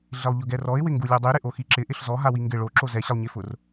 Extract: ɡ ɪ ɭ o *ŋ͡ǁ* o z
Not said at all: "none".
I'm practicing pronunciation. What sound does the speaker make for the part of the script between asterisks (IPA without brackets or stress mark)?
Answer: ǁ